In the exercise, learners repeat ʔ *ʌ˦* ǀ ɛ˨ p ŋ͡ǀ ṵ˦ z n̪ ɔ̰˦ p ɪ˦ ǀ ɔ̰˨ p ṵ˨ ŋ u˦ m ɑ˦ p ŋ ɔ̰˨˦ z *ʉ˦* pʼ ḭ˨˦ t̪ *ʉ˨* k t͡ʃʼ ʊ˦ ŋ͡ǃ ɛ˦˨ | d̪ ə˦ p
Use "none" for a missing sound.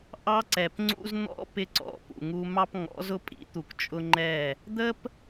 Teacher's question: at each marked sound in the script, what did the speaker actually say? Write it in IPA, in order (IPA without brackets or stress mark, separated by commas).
ɑ˦, ʊ˦, u˨